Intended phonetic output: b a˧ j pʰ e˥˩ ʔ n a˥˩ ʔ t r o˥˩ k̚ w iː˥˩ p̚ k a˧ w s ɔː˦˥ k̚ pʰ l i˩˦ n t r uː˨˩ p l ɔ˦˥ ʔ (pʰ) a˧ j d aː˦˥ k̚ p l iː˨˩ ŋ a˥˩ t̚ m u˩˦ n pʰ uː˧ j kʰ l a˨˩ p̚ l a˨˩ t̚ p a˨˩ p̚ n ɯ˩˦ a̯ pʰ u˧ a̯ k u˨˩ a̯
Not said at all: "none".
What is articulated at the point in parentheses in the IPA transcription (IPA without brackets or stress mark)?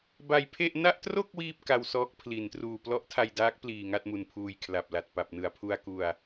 tʰ